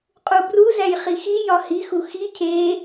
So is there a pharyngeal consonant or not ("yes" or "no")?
no